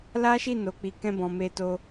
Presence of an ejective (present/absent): absent